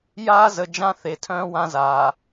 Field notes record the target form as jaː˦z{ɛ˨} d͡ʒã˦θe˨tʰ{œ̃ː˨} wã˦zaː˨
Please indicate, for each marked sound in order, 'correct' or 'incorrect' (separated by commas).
incorrect, incorrect